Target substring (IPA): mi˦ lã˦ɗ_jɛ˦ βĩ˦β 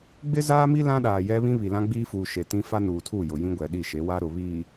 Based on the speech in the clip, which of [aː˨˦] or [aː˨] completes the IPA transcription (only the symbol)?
aː˨